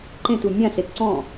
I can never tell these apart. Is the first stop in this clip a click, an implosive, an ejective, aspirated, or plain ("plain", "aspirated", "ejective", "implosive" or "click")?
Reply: click